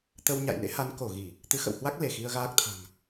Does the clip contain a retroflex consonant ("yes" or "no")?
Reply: no